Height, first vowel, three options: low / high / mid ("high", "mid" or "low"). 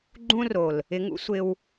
high